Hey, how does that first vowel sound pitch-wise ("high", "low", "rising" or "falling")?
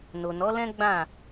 low